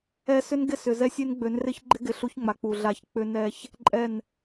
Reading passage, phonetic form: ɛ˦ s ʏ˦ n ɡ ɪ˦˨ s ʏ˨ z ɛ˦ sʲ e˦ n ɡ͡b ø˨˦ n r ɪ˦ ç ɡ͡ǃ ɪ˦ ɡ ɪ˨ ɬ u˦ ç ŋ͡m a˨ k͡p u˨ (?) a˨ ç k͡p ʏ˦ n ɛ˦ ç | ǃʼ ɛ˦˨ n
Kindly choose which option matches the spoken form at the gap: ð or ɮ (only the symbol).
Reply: ɮ